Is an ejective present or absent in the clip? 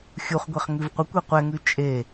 present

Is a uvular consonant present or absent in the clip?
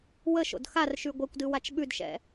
absent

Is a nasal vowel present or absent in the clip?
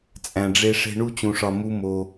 present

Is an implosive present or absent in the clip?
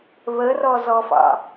absent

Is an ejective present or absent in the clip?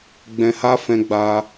absent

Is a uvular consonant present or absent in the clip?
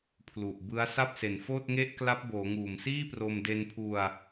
absent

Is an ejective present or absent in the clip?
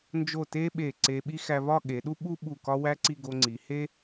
absent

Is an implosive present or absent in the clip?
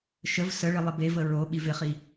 present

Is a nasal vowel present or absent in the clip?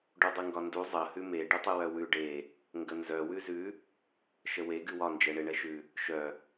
absent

